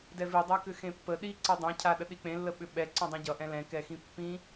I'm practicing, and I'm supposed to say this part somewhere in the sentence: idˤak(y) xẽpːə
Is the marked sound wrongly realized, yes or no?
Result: yes